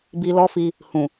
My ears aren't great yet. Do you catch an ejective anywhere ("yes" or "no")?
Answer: no